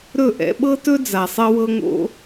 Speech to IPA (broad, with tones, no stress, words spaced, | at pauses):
ɾɵ˥˩ ʔɛ̰˧ɓɤ˥tɵ˥ d͡za˩sˤe˥wɤ˥ŋo̰˥